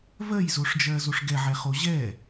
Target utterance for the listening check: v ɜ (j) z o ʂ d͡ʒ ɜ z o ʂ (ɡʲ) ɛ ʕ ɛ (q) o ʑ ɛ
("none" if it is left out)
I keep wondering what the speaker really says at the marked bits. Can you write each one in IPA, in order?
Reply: j, ɡ, χ

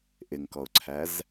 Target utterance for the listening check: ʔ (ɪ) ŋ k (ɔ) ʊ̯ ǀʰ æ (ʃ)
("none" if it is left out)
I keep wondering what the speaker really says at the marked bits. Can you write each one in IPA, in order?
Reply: ɪ, ɔ, z

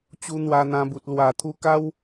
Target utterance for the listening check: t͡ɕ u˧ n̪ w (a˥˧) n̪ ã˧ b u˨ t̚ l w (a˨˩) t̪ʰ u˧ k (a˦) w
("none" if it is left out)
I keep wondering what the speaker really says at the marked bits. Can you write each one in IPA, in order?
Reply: a˧, a˨˩, a˦

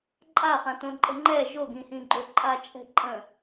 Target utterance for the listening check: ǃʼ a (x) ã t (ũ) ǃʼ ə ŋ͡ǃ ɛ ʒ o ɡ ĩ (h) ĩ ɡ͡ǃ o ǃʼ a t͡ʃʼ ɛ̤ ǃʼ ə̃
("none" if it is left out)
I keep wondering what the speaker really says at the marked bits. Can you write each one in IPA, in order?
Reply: χ, õ, h

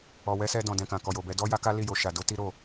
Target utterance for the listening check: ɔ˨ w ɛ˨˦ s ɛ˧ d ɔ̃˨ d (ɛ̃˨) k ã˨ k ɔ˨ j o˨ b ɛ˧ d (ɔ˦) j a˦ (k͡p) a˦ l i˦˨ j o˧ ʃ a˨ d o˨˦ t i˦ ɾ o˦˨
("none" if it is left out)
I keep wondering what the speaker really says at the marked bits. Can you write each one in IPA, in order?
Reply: ɛ̃˨, ɔ˦, k

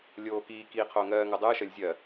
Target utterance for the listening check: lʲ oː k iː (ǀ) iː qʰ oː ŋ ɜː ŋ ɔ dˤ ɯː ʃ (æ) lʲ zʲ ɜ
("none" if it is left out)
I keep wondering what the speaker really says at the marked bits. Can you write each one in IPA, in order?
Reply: k, ɜ

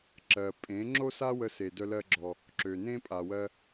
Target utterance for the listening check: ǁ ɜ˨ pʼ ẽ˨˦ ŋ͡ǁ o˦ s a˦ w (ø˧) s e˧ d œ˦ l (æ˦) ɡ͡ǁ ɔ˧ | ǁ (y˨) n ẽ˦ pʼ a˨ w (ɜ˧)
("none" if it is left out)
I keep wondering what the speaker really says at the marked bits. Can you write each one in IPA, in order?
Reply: ə˧, ɜ˦, ø˨, ɜ˧

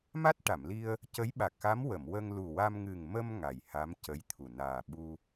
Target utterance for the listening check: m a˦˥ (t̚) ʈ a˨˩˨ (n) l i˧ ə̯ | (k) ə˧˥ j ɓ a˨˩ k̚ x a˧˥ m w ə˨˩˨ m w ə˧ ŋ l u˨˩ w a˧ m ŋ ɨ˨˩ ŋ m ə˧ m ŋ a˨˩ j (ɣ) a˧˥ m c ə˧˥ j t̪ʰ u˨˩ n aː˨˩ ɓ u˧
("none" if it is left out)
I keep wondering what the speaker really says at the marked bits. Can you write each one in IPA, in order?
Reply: t̚, m, c, h

